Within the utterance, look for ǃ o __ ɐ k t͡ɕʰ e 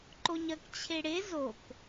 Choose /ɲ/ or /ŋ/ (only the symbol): ɲ